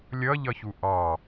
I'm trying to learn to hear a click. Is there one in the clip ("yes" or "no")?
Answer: no